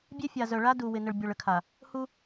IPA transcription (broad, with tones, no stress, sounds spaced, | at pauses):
bʲ e˦ fʲ a˨ z œ˨ ɭ a˦ d u˨ w ɪ˨ n ə˨ ɭ bʲ o˨ ɭ ə˦ kʰ a˨ | h u˦